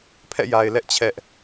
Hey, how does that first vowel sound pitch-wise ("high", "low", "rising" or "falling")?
falling